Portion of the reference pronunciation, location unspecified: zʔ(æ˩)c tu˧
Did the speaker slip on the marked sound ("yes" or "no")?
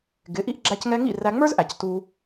no